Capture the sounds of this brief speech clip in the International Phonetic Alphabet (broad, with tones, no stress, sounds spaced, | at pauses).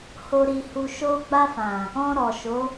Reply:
h o˦ ɾ i˧ h u˧ ʃ o˧ ɡ͡b a˧ f ã˨ | ɔ̃˧ ɾ ɔ˨ ʃ o˨˦